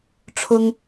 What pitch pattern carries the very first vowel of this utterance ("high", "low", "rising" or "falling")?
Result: high